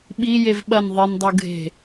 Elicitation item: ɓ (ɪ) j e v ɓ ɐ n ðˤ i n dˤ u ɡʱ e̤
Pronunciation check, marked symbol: incorrect: i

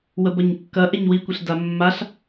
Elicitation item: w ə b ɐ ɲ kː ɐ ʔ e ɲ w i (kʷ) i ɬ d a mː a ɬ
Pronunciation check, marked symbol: correct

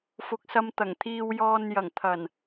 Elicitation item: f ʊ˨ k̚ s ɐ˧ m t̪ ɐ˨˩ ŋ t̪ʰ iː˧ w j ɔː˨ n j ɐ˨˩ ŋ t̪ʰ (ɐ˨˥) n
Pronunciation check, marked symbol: incorrect: ɐ˨˩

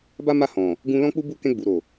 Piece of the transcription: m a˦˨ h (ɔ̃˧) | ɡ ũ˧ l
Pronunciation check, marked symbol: incorrect: ɔ̃˨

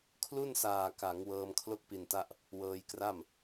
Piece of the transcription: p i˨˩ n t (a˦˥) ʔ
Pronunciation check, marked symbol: correct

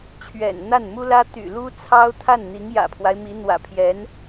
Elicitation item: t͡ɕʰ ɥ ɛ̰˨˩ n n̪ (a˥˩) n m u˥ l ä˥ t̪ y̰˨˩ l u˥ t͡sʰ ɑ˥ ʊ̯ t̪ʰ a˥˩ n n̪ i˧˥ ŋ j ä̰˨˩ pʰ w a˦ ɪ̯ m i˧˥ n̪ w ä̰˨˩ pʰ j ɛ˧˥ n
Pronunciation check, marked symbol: correct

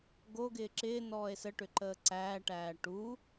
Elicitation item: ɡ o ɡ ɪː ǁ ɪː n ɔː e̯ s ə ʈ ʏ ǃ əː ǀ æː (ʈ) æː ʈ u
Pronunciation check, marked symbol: correct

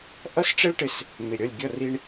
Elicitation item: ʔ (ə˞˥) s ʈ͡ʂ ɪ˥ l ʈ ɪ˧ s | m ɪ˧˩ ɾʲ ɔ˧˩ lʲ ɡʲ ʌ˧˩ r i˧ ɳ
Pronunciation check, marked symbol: incorrect: ʌ˥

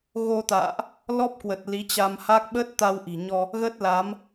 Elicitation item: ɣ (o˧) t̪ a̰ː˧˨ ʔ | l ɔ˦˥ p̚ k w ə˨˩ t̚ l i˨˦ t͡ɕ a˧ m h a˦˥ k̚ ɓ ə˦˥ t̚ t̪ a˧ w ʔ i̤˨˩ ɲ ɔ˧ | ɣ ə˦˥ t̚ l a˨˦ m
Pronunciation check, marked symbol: correct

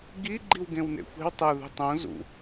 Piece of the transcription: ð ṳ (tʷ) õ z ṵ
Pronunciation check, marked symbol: incorrect: tˤ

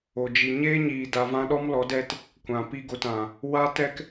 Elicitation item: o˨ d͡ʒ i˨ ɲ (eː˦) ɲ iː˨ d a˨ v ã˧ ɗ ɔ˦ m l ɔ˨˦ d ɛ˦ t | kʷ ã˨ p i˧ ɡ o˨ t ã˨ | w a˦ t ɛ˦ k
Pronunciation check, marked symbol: correct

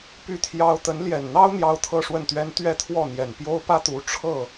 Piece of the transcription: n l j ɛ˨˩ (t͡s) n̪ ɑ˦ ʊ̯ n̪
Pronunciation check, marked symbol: incorrect: n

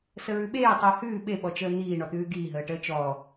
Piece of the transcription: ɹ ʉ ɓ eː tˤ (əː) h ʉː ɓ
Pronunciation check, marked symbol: correct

